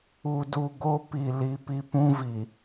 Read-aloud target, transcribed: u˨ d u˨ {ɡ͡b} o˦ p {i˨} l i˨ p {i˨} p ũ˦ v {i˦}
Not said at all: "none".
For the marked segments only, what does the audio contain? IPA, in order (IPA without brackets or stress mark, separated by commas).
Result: ɡ, i˨, i˦, i˨